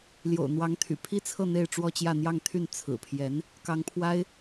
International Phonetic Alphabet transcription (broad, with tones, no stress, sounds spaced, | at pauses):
l j o̰˨˩ ʊ̯ n̪ w ɑ˧˥ ŋ t̪ʰ y̰˨˩ pʰ i˥ t͡sʰ ɤ˥˧ n̪ e˥˧ ɪ̯ ʈ͡ʂ w ɔ˥˧ t͡ɕ j ä˥˧ n̪ j ɑ˥˧ ŋ t̪ʰ y˥˩ n t͡sʰ ɹ̩˨˩ pʰ j ɛ˧˥ n | k ɑ˧˥ ŋ pʰ w a˥ ɪ̯